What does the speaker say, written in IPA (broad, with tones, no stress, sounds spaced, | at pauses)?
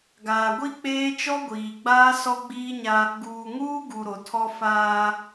ɡ aː˨ ɡʷ i˦ k͡p eː˦ t͡ʃ ɔ˦ ɡʷ iː˨ ɡ͡b aː˦ s ɔ˦ ɡ͡b iː˦ ɲ a˦ | ɡ uː˨ ŋ uː˦ ɡ u˨ ɾ o˨ tʰ ɔ˦ f aː˦